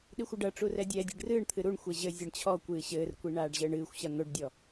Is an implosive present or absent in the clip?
present